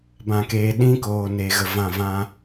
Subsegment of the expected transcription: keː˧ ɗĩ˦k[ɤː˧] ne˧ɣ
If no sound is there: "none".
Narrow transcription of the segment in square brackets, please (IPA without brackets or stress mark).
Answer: oː˧